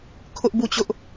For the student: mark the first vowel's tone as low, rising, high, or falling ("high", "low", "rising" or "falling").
high